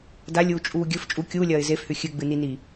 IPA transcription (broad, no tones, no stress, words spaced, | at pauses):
dalʲuːt͡ʃʼuː ɡʲɵf t͡ʃʼu kʲuːlʲɐːɪ̯ zefhʉ xʲɨɡ͡bɨnini